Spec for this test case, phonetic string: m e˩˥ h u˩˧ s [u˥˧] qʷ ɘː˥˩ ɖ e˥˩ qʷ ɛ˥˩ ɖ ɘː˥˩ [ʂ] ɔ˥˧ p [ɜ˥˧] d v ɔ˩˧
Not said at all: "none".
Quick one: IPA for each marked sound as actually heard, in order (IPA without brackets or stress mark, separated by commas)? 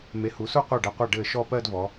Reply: u˥˧, ʃ, ɜ˥˧